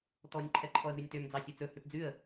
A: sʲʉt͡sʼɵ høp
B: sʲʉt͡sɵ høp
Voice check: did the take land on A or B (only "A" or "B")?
B